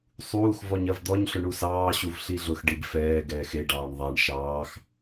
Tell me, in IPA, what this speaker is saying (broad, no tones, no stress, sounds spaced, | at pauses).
sˤ uː x v ɔ ɲ ɐ v d̪ ɔ ɲ ɬ ʊ ɳ u s ɑː ɕ u v ɬ i ɮ ʊ x ɖ i b f ɛː ɡ ɛː x e ɖ ɑː ɳ ðˤ a ɳ ʃ ɑː x